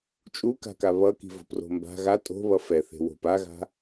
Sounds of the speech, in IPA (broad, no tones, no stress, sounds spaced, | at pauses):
t͡ʃʼ u k a̤ k a β ʌ k i̤ v o̤ p r o̤ m b a̤ ɣ a tʼ o̤ β ʌ f ɛ θ e̤ w o̤ p a ɣ a̤